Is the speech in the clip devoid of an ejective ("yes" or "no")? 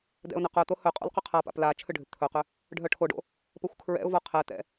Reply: no